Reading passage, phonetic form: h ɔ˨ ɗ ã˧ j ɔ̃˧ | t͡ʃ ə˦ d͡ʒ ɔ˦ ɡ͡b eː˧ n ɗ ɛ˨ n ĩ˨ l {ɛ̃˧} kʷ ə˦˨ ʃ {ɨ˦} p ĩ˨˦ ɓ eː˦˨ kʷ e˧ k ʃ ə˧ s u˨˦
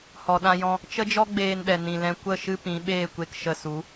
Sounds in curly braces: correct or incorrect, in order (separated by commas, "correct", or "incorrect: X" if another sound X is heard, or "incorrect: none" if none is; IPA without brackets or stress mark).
correct, correct